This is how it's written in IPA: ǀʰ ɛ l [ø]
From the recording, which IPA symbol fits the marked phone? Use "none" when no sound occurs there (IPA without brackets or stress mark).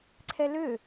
ø